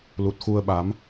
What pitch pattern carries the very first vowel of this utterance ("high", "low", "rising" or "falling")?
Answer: low